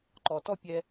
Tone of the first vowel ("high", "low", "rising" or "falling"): low